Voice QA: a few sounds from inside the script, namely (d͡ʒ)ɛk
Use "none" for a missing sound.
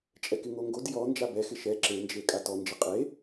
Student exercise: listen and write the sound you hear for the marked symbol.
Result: t͡ʃʼ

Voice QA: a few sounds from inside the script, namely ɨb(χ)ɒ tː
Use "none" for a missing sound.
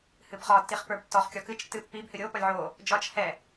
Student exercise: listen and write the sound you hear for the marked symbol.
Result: χ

